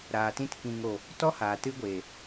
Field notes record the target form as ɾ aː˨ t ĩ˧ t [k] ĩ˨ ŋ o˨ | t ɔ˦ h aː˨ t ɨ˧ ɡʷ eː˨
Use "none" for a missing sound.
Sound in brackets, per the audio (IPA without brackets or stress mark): k